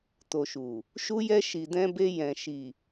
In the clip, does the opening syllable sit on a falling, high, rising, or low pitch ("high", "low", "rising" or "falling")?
low